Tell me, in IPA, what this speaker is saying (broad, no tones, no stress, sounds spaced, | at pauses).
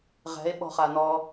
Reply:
ʁ ɛ̤ e̯ ɓ ɔ̤ χ a n ɔ